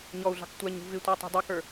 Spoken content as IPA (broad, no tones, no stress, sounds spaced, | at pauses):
ɲ ɔ u̯ ɮ ɑ̤ k tʷ æ ɲ ṳ v ɪ tʷ ə˞ tˤ ɑ̤ dˤ ə˞ k ə˞